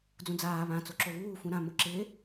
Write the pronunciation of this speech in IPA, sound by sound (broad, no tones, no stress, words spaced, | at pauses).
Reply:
d͡zũd͡zaː βã t͡soǁoβuː fũɾã mʊǁɪː